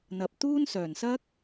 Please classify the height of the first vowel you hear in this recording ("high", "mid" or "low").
low